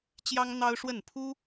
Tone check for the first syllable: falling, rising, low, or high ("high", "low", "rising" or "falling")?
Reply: high